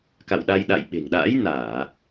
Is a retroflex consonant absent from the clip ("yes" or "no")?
yes